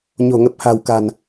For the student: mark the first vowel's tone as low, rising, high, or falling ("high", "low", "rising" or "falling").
low